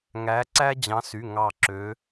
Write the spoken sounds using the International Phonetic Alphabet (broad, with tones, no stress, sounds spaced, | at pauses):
ŋ æ˨˦ ǀ æ˦ d͡ʑ ɑ̃˨˦ s y˩˧˩ ŋ ɑ˧˩ ǁ ø˨˦